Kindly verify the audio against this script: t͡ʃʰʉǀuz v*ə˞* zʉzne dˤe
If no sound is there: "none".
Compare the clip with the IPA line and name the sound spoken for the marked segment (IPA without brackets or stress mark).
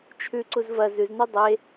ɐ